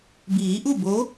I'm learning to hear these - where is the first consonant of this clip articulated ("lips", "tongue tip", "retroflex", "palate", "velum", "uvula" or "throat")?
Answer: lips